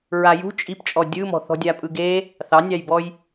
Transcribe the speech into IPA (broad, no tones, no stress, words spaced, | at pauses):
ɹajṳ t͡ʃʼipt͡ʃʼɔ dʲɯmɔ̤ θɔ̤dʲapʼɯɡe | θɑnʲɑjbɔj